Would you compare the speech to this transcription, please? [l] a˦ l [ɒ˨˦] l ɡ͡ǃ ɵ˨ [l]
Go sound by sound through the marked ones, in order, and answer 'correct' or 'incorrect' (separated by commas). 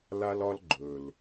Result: correct, incorrect, correct